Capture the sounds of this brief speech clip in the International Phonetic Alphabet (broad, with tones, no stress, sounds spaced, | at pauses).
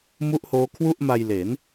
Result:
m u˦˥ ʔ h oː˦˥ kʰ w u˥˩ ʔ m a˧ j l e˩˦ n